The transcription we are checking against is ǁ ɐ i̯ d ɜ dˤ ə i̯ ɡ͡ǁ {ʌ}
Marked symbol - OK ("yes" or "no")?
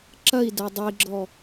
no